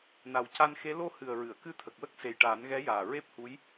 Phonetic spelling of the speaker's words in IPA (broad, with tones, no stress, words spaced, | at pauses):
na˨˩wca˧nxe˧˥ lo˧ hɨ˨˩ə̯ɹɨ˨˩˨ə̯ kɨ˧t̪ʰə˨˩k̚wə˦˥k̚ se˨˩jʈaː˨˩˦nɣɛ˧˥jaː˨˩ ɹe˦˥p̚hu˧˥j